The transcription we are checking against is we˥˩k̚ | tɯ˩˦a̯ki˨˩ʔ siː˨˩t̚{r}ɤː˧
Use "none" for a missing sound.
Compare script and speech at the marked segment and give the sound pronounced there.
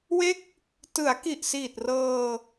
r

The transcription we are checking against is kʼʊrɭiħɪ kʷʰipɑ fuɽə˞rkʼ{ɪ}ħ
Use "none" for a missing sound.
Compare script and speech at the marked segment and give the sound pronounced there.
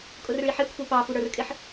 ɪ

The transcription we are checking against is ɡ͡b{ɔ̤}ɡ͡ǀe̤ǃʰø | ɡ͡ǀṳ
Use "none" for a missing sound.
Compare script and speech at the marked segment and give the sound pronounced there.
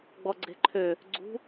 ɔ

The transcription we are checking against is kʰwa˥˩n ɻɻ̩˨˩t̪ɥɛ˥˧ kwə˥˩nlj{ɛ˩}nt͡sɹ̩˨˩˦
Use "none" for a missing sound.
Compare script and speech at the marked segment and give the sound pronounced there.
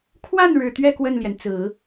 ɛ˩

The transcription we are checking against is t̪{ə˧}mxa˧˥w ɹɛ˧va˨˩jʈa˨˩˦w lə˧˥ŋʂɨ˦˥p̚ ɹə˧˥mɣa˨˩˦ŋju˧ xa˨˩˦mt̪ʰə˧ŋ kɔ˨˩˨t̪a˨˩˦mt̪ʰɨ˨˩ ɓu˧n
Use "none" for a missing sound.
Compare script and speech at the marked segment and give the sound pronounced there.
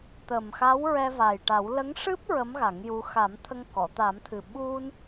ə˨˩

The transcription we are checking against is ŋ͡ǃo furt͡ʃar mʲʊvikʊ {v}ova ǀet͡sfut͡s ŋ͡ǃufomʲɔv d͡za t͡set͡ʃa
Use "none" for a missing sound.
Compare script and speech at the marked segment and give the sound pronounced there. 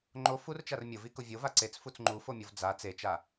vʲ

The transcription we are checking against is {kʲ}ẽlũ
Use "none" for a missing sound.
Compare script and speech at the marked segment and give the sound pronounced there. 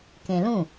k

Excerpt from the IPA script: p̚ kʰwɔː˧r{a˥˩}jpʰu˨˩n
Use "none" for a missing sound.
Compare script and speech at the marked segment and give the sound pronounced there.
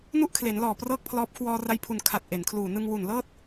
a˧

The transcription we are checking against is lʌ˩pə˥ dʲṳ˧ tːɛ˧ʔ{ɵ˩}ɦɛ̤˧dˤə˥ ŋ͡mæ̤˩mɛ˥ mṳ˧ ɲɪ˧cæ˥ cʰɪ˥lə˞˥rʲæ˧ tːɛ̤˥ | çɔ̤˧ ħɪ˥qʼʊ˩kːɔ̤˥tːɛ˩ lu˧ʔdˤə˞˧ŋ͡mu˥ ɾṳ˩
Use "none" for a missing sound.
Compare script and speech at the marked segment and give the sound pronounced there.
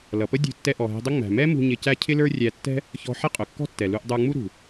ɔ˩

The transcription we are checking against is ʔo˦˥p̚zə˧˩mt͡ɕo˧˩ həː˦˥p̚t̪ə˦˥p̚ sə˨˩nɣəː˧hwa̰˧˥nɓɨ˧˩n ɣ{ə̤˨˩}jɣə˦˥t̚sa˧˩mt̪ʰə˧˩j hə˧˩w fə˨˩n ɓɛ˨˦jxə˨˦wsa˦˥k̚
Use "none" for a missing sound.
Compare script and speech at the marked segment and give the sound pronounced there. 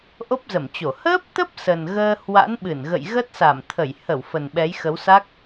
ə̰˧˨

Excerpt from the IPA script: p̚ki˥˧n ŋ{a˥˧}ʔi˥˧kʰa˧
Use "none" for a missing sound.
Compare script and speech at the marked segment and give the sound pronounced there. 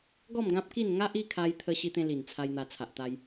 a˦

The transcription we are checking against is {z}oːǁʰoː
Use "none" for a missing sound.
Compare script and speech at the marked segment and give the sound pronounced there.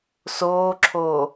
s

